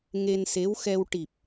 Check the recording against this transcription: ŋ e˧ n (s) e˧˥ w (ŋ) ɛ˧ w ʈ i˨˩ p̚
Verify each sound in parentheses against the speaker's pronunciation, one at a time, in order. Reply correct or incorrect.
correct, incorrect

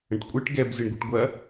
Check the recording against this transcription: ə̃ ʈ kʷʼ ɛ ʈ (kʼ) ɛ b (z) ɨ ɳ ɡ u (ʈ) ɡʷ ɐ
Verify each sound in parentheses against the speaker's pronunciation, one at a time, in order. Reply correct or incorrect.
incorrect, correct, correct

